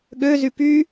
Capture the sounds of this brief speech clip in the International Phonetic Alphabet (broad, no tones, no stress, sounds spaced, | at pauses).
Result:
ɠ ø z y p y